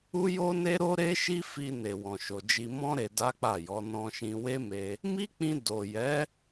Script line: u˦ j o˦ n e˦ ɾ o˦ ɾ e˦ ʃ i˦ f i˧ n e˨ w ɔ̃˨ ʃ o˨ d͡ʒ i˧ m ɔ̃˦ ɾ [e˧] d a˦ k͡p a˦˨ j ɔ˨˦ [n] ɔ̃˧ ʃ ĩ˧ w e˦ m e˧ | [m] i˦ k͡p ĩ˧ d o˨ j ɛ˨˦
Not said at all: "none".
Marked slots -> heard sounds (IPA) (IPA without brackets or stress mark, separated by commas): e˧, n, m